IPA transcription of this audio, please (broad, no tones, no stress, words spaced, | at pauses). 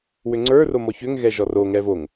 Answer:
wʏŋ͡ǀə˞ romɔçʏŋ ɣɛʒɔro ŋɛvoŋ